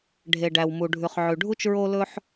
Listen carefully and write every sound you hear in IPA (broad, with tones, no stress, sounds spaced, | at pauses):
ɖʱ e˩ ɖ æ˩ w m u˩ ɖʱ ʉ˩ χ ʕ ʉ˩ ɖʱ u˥ t͡ʃ ɹ o˥ l ɵ˥ ħ